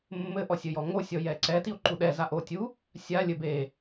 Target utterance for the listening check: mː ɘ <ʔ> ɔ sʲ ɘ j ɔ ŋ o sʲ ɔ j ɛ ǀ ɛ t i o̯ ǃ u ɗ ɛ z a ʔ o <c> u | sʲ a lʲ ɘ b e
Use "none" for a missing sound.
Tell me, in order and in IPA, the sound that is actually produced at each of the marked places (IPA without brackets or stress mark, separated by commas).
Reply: ʔ, tʲ